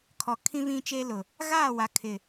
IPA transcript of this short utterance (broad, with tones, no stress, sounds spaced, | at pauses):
kʰ ɔ˨ kʰ ĩ˦ v ĩ˦ t͡ʃ e˦ l ʊ˨ | ɣ aː˦˨ w a˨ kʰ ɪ˨